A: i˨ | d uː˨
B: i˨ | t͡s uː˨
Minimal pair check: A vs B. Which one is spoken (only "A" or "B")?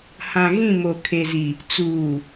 B